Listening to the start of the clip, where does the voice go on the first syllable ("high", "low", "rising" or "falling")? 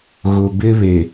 low